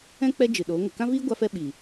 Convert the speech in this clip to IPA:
ɛ̃˦ k͡p ɛ˦ d͡ʒ ɨ˨ ɗ oː˨˦ ŋ ə˨ k ã˦ v iː˦ ɡʷ a˧ f ɛ˦ ɓ i˨

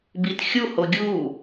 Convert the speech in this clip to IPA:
b i t xʲ u h o ɡʲ u

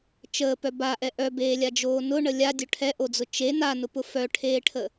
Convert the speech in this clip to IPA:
t͡ʃ əː p œ b a ʔ ɛ ʔ œ b eː lʲ a d͡ʒ oː n ʊ ɳ ə lʲ a dʲ œ ʈʰ ɛ ʔ o d͡z ʊ t͡ʃ e n a n ʊ p ʊ f œ ʈʰ eː ʈʰ ə

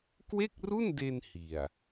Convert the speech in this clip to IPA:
k w e˥˩ k̚ r u˥˩ n d e˧ n h i˨˩ a̯

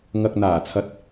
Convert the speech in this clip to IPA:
ŋ ɐ˨ k̚ n̪ aː˨˩ t͡sʰ ɐ˨˥ t̚

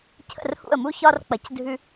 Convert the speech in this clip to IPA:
cʰ ə̰˦˨ r h ṵ˦˨ ə̯ m u˦ ç ɒ˦ r k͡p ɐ˧ c dʱ ʉ˦

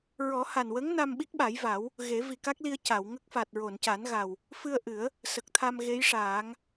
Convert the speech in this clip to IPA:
ɹ ɔ˨˩˦ h a˨˩ n w ə˧˥ ŋ n a˧ m ɓ i˦˥ k̚ ɓ a˨˩˦ j v a˨˩˦ w | ɣ e˨˩˦ v i˨˩ k a˦˥ k̚ l i˧ ə̯ c a˨˩˨ w ŋ ə˦˥ k̚ f a˨˩ t̚ ɹ o˨˩˨ n c a˨˩˦ n ɣ a˨˩ w | f ɨ˧ ə̯ ʔ ɨ˨˩˦ ə̯ | s ə˨˩ k̚ t̪ʰ a˧ m ɣ e˧˥ j ʂ aː˨˩˦ ŋ

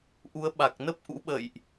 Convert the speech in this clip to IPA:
ʔ u˨˦ ə̯ ɓ a˨˩ k̚ n ə˦˥ p̚ ʔ ṵ˧˥ ɓ ə̰˧˨ j ʔ

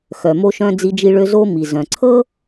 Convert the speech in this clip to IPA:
x œ˩ m o˧ ʃ œ̃˧ d͡z i˧ d͡ʒ i˧ ɭ ø˧ z o˧ m i˩ z œ̃˩ ǀʰ ɤ˥

